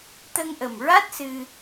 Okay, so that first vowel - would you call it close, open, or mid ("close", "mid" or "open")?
mid